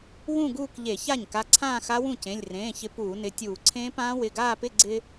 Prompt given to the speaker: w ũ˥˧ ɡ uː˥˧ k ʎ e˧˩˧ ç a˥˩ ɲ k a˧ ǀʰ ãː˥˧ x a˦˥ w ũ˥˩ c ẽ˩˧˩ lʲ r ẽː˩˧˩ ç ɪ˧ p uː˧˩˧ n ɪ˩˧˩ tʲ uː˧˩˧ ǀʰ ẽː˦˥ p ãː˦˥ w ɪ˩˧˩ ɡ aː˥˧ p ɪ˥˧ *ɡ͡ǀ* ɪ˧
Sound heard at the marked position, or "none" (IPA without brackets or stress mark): ɡ͡ǀ